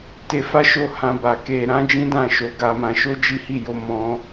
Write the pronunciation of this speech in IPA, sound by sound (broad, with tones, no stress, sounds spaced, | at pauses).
t e˧ f a˦ ʃ o˦˨ h ã˧ b a˨ k e˧ ɾ ã˦ d͡ʒ ĩ˦ d ã˦˨ ʃ o˨˦ ɡ a˧ m ã˧ ʃ o˦ d͡ʒ i˦ h i˦˨ j o˧ m ɔ̃˧